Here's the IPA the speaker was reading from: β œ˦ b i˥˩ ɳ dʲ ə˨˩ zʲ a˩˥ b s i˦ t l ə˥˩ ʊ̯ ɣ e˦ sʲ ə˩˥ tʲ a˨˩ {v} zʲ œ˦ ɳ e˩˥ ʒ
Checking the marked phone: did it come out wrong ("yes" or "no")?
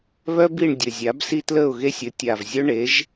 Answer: no